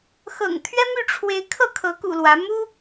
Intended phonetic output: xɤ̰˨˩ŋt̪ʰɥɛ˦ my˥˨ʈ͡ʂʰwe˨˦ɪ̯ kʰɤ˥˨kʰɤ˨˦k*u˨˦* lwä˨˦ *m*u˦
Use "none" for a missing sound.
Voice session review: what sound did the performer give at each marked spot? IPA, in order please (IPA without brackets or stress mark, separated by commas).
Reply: ṵ˨˩, m